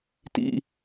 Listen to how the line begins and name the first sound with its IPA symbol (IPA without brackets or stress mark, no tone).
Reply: t